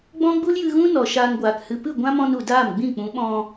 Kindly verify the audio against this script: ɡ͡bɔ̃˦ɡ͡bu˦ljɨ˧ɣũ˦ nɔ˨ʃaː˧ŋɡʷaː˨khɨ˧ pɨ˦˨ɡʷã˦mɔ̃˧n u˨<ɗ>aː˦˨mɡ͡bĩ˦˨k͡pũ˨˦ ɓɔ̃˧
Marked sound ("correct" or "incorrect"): incorrect